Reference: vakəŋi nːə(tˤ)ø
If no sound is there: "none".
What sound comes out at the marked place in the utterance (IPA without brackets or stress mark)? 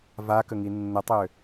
tˤ